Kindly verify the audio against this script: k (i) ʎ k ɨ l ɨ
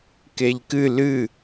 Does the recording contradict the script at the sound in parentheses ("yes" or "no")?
yes